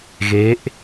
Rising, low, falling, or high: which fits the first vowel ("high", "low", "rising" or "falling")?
rising